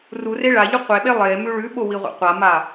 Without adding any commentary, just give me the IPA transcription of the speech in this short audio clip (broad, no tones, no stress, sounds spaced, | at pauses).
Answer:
r u r e ɭ a ʎ u qʷ e ɓ e lˠ e m ʉ ɭ ʉ ɓ o w i ʁʷ ḛ qʷ a m a